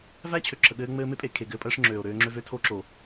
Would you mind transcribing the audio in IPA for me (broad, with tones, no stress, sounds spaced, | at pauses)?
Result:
v æ˦ t͡ɕʰ ø˨ ǁʰ ə˨ ɠ ɘː˦ ŋ͡m ɘː˦ m e˦ pʼ e˨ kʰ e˨ ɡ ɘː˦ pʼ əː˦ ʂ ŋ͡ǁ øː˨ o̯ ɾ øː˦ ŋ͡ǁ ø˦ v ø˦ tʰ o˦ ǁ o˨